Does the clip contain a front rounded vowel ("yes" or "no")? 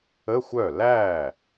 yes